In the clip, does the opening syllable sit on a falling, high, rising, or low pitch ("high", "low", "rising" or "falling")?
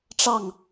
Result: falling